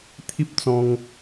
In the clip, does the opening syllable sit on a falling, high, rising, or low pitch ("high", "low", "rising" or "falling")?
high